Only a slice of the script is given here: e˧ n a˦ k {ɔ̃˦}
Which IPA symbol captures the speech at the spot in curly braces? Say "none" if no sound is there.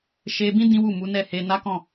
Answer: ɔ̃˦˨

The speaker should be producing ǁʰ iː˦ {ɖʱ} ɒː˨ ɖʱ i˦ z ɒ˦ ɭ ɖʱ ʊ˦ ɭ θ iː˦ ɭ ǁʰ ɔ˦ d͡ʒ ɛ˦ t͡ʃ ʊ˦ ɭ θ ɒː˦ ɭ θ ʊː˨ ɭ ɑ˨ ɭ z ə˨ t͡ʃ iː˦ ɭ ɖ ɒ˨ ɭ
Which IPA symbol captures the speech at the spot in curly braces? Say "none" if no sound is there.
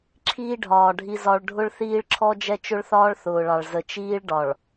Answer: ɖʱ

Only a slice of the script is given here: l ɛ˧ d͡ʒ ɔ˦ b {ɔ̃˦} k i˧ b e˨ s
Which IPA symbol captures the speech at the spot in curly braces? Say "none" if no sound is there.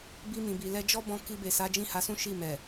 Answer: ɔ̃˧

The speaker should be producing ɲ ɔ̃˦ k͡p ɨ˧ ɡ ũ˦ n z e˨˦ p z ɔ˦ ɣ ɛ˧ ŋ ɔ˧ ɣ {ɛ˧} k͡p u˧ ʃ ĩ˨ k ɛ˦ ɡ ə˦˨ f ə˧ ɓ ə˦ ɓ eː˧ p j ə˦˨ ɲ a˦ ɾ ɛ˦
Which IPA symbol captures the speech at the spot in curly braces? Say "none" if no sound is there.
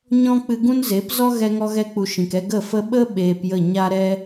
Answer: ɛ˧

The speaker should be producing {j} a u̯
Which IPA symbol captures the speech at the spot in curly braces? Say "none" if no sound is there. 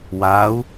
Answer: w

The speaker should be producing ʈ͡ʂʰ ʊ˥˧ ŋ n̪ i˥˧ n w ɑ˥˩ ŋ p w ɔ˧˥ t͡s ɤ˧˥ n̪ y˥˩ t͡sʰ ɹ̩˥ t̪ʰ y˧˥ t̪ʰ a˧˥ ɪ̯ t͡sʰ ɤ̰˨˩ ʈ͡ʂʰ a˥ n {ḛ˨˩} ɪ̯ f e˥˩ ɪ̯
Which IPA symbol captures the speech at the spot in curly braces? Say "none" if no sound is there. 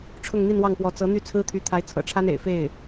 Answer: ḛ˨˩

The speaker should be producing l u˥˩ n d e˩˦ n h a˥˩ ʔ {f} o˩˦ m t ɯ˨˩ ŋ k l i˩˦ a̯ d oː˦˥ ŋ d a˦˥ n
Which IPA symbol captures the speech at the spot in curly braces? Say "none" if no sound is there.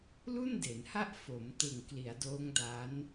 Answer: f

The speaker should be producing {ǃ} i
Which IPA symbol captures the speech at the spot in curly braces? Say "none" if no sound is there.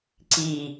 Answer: ǀ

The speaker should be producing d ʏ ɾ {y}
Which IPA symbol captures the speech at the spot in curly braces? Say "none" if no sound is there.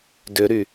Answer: y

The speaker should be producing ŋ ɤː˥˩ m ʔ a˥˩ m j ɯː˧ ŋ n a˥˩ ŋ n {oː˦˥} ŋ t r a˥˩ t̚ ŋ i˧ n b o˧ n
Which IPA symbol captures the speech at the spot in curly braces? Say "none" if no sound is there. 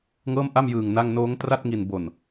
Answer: oː˦˥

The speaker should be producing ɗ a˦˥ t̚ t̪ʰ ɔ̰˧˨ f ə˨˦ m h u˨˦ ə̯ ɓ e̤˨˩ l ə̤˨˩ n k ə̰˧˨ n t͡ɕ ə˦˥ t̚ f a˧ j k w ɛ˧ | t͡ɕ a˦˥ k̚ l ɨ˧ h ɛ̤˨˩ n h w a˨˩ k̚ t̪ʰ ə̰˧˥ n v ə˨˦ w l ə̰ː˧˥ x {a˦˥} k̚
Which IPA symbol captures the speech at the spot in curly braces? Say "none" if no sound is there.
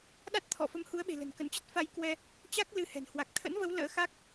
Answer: a˦˥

